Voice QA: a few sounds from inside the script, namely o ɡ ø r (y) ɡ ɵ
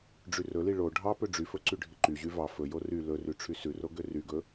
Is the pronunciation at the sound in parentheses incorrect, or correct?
correct